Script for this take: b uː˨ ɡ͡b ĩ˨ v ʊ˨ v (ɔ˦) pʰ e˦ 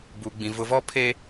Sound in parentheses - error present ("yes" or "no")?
no